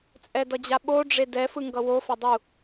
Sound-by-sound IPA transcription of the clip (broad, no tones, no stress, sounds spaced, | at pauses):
t͡sʼ ɛ d ʌ d͡ʑ a ɓ o ɖ͡ʐ e d ɛ f ɯ ŋ ɡ ʌ w o f a dˤ u